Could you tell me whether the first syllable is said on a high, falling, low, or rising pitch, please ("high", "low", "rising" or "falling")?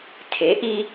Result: rising